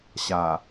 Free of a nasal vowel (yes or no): yes